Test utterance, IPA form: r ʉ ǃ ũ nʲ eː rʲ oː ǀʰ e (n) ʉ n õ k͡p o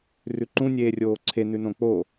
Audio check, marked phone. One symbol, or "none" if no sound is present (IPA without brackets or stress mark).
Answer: n